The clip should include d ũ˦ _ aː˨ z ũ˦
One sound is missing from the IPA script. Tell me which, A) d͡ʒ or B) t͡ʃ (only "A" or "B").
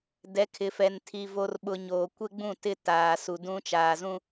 B